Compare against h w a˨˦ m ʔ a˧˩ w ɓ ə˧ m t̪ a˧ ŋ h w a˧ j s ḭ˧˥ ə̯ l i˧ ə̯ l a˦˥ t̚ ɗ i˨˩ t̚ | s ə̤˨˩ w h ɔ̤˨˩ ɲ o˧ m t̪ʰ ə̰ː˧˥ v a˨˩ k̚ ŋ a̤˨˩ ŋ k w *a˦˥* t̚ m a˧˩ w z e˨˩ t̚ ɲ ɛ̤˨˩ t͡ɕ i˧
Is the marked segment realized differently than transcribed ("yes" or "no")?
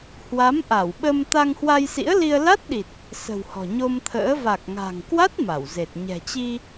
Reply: no